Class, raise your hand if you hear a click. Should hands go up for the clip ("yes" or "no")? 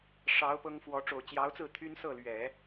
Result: no